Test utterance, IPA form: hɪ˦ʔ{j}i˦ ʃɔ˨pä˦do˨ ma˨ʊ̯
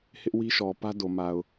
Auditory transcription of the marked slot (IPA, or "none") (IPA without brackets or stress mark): w